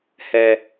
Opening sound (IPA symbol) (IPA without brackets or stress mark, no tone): h